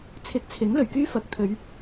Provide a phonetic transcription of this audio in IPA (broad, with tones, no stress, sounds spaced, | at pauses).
t͡sʰ ɪ˨˥ k̚ t͡sʰ ɪ˨˥ ŋ l ɵ˨˩ ɥ k yː˥ f ɐ˨˥ k̚ t̪ʰ ɵ˨˧ ɥ